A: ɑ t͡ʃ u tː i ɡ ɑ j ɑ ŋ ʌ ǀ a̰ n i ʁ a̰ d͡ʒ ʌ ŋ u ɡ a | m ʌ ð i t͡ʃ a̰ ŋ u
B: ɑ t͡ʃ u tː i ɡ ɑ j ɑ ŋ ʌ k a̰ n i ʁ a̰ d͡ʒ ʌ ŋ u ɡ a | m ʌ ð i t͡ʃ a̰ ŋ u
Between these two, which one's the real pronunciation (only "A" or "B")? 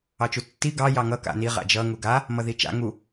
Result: B